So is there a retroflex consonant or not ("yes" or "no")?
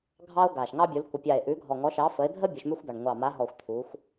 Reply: yes